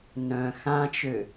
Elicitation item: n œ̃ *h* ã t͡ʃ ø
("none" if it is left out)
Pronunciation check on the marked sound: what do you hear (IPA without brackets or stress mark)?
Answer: x